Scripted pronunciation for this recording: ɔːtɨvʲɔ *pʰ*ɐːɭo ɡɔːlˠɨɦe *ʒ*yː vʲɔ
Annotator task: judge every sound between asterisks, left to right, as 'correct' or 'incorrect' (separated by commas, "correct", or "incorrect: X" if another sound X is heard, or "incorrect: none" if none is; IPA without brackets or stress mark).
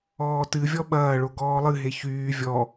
incorrect: ɓ, incorrect: ç